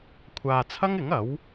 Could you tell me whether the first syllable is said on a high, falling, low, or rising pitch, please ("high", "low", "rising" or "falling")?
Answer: low